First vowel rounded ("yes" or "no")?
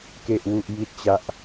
no